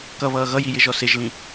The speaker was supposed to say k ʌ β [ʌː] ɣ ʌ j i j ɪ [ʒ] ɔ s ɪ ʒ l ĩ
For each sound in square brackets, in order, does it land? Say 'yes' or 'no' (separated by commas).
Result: yes, yes